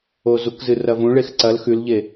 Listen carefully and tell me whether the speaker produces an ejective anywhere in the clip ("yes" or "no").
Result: no